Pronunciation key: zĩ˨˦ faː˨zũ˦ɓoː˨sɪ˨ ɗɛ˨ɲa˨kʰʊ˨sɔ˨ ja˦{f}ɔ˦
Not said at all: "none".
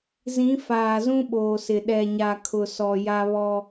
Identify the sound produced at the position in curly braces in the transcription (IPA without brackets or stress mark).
β